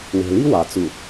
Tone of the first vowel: low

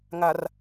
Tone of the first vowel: low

